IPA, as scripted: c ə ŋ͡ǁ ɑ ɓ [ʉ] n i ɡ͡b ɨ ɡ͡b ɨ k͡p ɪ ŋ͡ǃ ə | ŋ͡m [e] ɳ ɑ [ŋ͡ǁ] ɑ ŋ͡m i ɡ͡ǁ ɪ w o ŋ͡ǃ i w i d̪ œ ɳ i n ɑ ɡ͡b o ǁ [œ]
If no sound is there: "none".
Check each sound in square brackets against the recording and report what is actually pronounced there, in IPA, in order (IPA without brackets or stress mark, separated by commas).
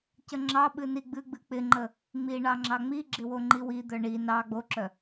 ɨ, i, ŋ͡ǁ, œ